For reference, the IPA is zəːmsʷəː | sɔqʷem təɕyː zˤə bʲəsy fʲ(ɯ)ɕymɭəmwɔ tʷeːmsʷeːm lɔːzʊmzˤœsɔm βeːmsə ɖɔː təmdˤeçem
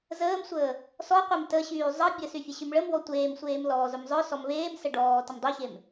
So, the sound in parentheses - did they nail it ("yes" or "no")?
no